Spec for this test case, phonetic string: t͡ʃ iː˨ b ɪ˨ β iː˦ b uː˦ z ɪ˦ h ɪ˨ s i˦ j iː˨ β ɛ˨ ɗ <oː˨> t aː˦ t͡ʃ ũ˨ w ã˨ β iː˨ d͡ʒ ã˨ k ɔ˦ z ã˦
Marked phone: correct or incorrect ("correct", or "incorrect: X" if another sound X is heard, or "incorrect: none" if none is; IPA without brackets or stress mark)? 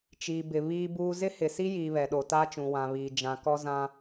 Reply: incorrect: o˨